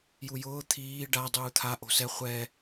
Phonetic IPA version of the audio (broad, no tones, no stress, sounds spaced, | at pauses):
j u j ʊː t̪ʰ iː ɖ a dˤ uː t̪ʰ a ʔ o̤ s ɛ χʷ ɛ